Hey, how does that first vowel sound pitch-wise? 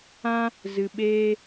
high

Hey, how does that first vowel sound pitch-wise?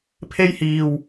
high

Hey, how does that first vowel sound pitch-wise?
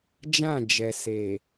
falling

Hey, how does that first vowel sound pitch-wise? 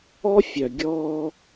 high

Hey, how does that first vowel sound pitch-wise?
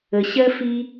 low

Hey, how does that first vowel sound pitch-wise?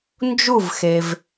falling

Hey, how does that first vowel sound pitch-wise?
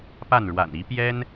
falling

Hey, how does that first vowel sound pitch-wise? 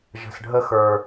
low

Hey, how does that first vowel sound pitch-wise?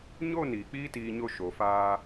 falling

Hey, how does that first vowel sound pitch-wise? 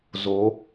rising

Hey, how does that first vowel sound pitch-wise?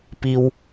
high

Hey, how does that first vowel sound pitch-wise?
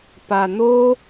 low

